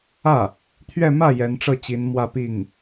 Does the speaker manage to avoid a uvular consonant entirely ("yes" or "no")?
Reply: yes